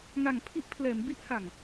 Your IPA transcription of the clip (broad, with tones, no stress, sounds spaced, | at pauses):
ŋ a˨˩ ŋ pʰ i˦˥ ʔ pʰ l ɛː˩˦ m b i˦˥ ʔ h a˨˩ ŋ